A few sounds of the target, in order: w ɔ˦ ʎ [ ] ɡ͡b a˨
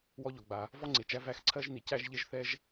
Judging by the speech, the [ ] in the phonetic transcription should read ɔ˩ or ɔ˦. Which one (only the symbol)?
ɔ˩